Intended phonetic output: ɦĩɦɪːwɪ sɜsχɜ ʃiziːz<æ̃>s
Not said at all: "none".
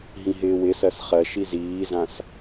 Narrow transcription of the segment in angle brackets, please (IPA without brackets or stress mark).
ã